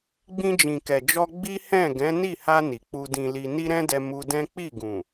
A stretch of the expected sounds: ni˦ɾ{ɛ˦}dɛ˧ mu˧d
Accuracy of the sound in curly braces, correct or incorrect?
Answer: incorrect